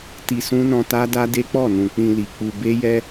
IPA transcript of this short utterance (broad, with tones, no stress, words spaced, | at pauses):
ti˧sũ˦nɔ̃˧ ta˦da˦de˦ k͡pɔ˦˨nũ˨ k͡pĩ˧li˨k͡pu˧ be˦jɛ˦